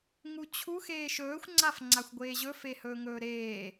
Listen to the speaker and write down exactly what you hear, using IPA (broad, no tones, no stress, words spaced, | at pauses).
ŋut͡ɕʰu xeːʃɵːxʷ ŋ͡ǀafŋ͡ǀaxʷɡʷeːʑɵ fehɵːŋɵːɾeː